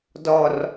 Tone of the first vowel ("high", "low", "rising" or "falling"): low